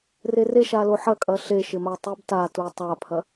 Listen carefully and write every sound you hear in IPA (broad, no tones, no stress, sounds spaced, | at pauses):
r e r e ʃ a l o ħ ɐ kʼ ɐ ɬ e ʃ ɪ m a tˤ u b t a t u tˤ a pʰ ɐ